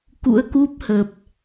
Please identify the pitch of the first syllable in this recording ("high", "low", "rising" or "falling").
rising